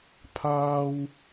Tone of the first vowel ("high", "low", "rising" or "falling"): low